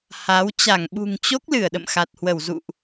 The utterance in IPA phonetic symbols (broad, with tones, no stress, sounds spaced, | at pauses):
h a˨˦ w t͡ɕ a˧˩ ŋ ɓ ṳ˨˩ ŋ t͡ɕ o˦˥ k̚ l ɨ˧˩ ə̯ ɗ ə̰˧˨ m x a˨˩ t̚ h w ə˧˩ w z ṵ˧˨ ʔ